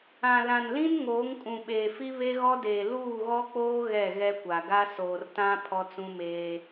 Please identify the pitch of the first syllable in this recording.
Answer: low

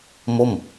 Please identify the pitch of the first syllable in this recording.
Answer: falling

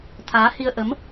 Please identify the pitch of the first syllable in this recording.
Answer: rising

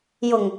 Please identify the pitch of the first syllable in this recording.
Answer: low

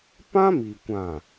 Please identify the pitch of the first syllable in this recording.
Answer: high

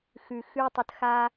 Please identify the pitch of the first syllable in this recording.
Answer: low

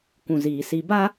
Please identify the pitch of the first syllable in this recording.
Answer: low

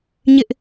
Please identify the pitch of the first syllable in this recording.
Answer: high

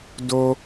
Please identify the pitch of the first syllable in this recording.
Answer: high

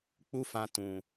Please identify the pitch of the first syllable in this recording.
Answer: high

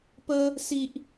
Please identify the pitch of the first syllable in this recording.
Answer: high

